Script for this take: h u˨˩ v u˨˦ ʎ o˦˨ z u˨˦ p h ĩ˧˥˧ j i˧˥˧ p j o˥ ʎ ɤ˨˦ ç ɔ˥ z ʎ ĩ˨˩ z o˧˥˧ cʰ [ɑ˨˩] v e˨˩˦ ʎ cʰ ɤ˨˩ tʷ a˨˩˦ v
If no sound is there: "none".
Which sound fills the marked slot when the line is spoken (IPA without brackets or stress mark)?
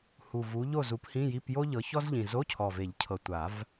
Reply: ɔ˨˩